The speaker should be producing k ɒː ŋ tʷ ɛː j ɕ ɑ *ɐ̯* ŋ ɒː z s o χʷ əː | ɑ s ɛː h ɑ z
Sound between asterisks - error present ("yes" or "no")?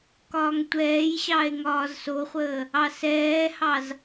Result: yes